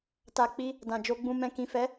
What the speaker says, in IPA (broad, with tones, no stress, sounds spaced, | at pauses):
t a˨ k͡p i˧ | d ã˨ d͡ʒ o˧ ɡ͡b ũ˧ m ɛ̃˨ k ĩ˨ f ɛ˨˦